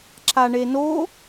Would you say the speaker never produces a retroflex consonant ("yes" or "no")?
no